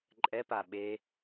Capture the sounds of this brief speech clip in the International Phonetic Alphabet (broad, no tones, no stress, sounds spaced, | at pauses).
ǃʼ ɛ p a ɓ e